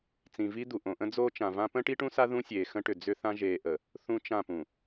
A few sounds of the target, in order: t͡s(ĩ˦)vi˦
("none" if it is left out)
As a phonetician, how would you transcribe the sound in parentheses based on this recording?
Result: ĩ˨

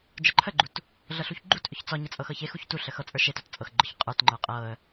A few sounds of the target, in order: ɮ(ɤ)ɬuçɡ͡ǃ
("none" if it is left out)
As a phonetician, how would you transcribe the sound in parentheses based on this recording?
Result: ɤ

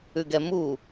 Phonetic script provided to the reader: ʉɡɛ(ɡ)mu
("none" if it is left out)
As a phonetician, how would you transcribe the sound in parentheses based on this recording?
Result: none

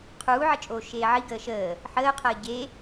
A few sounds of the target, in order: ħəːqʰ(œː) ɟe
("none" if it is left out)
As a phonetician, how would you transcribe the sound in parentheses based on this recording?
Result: əː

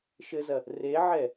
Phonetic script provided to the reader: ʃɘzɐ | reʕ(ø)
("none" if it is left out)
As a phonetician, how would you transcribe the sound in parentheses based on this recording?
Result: ɛ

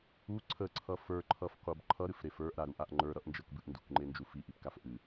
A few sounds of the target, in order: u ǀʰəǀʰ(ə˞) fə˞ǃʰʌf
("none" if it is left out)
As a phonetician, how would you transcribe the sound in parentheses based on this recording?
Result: ʌ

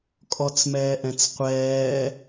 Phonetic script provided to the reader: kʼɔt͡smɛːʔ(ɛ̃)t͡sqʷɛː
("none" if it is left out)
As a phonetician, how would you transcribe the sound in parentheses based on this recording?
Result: ɛ̃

